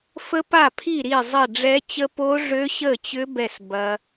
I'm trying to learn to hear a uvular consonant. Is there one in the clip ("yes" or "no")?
no